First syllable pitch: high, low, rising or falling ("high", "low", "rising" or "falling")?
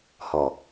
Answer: low